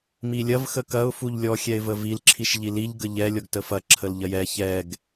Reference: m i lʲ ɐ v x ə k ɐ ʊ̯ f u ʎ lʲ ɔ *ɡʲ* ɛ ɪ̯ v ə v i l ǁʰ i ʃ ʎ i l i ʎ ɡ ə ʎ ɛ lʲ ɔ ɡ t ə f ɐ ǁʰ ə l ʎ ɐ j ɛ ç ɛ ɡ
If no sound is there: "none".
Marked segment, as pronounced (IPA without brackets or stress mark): xʲ